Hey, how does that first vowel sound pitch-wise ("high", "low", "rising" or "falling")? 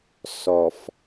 low